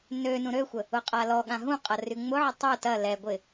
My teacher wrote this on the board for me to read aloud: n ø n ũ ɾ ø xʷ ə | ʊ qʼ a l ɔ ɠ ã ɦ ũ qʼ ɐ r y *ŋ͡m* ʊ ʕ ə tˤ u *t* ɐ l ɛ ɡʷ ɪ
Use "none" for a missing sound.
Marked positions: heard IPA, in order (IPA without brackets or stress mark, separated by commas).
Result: ŋ͡m, t